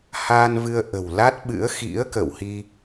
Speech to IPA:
h aː˧ n v ɨ˧ ə̯ ʔ ə̤˨˩ w l a˦˥ t̚ ɓ ɨ̰˧˥ ə̯ x ḭ˧˥ ə̯ k ə̰˧˨ w h i˧

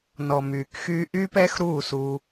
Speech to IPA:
n ɔ˨ m yː˨ k x yː˧ ʔ y˧ p ɛ˧ x ɾ uː˦˨ s u˧

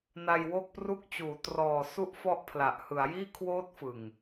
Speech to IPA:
n a˧ j w o˥˩ k̚ p r u˥˩ k̚ t͡ɕ uː˩˦ t r ɔː˨˩ s u˦˥ ʔ f ɔ˦˥ ʔ pʰ l a˨˩ ʔ h ɯ˩˦ a̯ j iː˥˩ kʰ w oː˦˥ t̚ f ɯ˨˩ ŋ

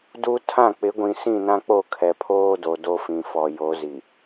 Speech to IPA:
d u˦ tʰ ã˦˨ k͡p ɪ˨˦ ɡʷ ĩ˨ s ĩ˦˨ n ã˦ k͡p o˦˨ kʰ ɛ˨ pʰ oː˦ d o˨ d o˦ f ĩ˨ f ɔ˨ j o˨˦ z i˨

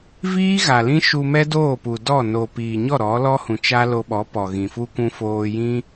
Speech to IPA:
v iː˦ ɣ a˨ l ĩ˦ ʃ u˧ m ɛ˦ d oː˦˨ p u˨ d ɔ˦˨ n o˨ p iː˨ ɲ ɔ˦˨ ɾ ɔ˨˦ l ɔ˦ h ũ˨ t͡ʃ a˦ l o˧ ɓ ɔ˨˦ p ɔ˨ ɣ ĩ˨ f u˦ kʷ ũ˧ f oː˧ j ĩ˦

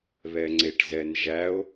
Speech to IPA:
β ɛ ŋ͡ǀ e ʈ z ɛ n ʒ æ o̯

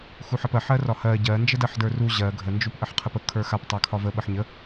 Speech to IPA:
x u ħ ə p ɜ ħ ɜ r ɒ h ɜ ɟ ɜ n d͡ʒ ə d ɜ ħ d ə˞ r u ʑ ɜ ɡʱ ə n d͡ʒ u p ʔ ə ħ qʰ ə p ə kʰ ə˞ x a p tˤ a kʰ ɒ v ə ɓ ə ħ ɲ ə

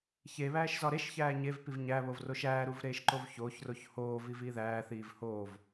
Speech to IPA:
ç e β æː ʃ z ɒ ɾ e ʃ ç æː ɲ e v p i v ɲ æ β o v r o ʃ æː ɾ u v ɾ eː ʃ ǃ o v ç oː ç r o ç h oː v i v iː ð æː θ iː v h oː v

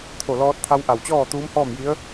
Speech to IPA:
t̪ʰ o˧˩ l ɔː˧ t̚ t̪ʰ a˧ w ʔ a˧˩ w t͡ɕ ɔː˥˨ t̪ uː˧˥ m h ɔː˥˨ m j i˧˥ ə̯

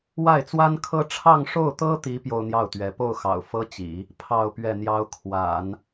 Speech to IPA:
w a˥˩ ɪ̯ t͡s w a˥ n kʰ ɤ˥ ʈ͡ʂʰ ɑ˥˧ ŋ ʂ o˥˩ ʊ̯ t̪ ɤ˥ t̪ i˧˥ p j o˥ ʊ̯ n̪ j ɑ˥˩ ʊ̯ t̪ ɥ ɛ˧˥ p o˥˩ ʊ̯ x ɑ̰˨˩ ʊ̯ f ɤ˥ t͡ɕ ḭ˨˩˦ | pʰ ɑ˥˧ ʊ̯ p ɥ ɛ˥˩ n̪ j ɑ˥ ʊ̯ kʰ w a̰˨˩˦ n

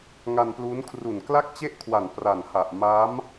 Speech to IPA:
ŋ a˧ n p l uː˦˥ n kʰ r u˨˩ n k l a˥˩ k̚ t͡ɕ e˥˩ ʔ kʰ w a˨˩ n p r a˨˩ n h a˨˩ ʔ m a˦˥ m

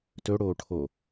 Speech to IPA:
t ɵ ɽ oː ʈʰ o

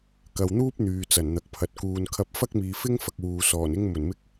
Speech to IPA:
k ɐ˨ w n̪ uː˥ p̚ n̪ yː˨ t͡s ɐ˨˩ n n̪ ɐ˨ k̚ pʰ ɐ˨˥ t̚ k uː˨ n kʰ ɐ˧ p̚ f ɐ˥ k̚ m iː˨ f ɪ˥ ŋ f ɐ˨ k̚ w uː˨ s ɔː˨˩ n ɪ˥ ŋ m ɵ˨˩ n m ɪ˧ k̚

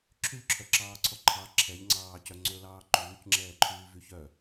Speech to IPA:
ǁʰ y ʎ ǁʰ œ ǁ ɑː ǀʰ ɔ ǃʰ ɑ ǁʰ ɛ ʎ ŋ͡ǀ ɑː c œ ŋ͡ǀ ɵ l ɑː ǃ uː c ŋ͡ǁ ɛː ǃʰ yː v y ç œ

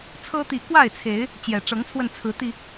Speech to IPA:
t͡sʰ ɤ˦ t̪ i˨˦ k w a˥˨ ɪ̯ t͡sʰ e˨˦ ɪ̯ | t͡ɕ j ɛ˨˩ ʈ͡ʂ ɤ˨˦ ŋ t͡sʰ w ə˧ n t͡sʰ ɹ̩˨˦ t̪ i˧

